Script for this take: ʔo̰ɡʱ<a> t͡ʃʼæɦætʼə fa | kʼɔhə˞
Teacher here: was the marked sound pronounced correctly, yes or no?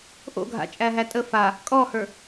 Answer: no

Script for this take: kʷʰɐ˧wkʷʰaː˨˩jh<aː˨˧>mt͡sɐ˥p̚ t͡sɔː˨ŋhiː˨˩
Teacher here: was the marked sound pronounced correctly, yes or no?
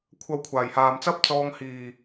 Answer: no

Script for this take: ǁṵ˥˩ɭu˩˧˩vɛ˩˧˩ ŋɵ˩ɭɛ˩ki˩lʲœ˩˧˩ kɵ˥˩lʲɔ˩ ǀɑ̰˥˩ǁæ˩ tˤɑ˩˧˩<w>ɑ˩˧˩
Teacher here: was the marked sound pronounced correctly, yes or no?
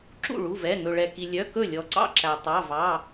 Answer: no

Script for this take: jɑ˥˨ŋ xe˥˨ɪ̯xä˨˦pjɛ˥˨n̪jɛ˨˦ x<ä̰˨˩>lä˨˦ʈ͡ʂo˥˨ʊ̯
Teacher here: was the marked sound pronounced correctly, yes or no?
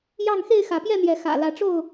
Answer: yes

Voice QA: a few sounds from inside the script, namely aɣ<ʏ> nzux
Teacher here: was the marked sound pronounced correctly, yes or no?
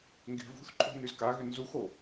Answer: yes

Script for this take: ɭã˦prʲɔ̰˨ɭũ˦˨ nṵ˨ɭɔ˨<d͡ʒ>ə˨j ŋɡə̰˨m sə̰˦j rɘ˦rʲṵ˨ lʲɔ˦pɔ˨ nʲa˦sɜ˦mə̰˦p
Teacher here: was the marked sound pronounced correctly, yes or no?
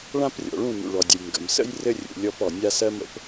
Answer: no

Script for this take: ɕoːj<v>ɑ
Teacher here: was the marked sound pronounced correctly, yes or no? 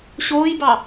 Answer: no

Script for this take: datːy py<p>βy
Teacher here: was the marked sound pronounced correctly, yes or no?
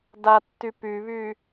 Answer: no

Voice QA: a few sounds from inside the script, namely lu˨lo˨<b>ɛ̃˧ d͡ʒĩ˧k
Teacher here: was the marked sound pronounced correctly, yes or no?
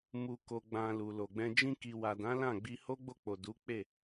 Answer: no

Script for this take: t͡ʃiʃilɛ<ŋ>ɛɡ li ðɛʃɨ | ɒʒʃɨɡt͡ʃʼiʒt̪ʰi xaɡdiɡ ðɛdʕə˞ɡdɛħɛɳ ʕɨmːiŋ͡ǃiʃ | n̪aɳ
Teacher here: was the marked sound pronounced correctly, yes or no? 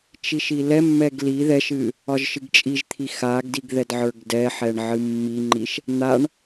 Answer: no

